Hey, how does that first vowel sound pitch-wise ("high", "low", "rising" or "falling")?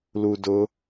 low